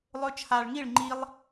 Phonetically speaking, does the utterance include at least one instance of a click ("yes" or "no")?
yes